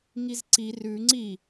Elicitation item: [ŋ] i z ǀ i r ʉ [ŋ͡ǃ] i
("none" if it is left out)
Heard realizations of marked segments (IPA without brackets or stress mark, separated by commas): ŋ, ŋ͡ǀ